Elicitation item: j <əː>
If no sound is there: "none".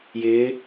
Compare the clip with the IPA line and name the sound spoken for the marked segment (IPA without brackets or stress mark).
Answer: ɪː